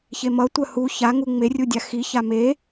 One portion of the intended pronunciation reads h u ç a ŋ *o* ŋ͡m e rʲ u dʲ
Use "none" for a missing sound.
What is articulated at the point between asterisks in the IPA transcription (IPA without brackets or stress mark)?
u